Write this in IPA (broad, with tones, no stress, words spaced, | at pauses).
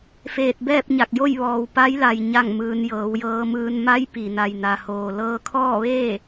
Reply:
feː˧˩t̚bɛː˥˨p̚ɲa˧˩k̚jo˥˨j ʋɔː˩w pa˧˥jla˩j ɲa˥˨ŋmɯː˧n jɤː˩˧wjɤː˧mɯː˧n ma˧˥j pi˩na˩jna˩hoː˩ lɤː˧kʰɔː˥˨ʋeː˥˨